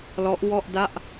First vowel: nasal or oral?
oral